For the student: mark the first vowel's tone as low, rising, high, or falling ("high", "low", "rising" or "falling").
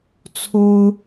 high